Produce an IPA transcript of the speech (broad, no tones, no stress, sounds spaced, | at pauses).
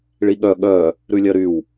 ɭ i ɠ œ ɠ œ | ɾ ʉ lʲ œ ɾ y w